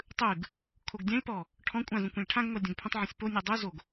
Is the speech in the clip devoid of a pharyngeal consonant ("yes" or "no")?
no